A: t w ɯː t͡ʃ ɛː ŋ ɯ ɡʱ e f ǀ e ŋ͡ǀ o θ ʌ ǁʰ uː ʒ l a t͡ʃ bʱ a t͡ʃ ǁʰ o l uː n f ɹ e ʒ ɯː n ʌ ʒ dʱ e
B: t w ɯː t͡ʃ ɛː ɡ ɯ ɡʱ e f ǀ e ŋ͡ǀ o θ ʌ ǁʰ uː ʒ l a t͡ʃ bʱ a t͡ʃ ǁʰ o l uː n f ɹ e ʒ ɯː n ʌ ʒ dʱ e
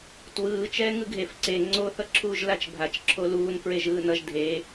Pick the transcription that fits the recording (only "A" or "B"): A